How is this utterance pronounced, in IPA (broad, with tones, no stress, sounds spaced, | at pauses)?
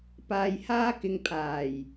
p aː˧ j h aː˥ k ɪ˧ ŋ pʰ aː˨˩ j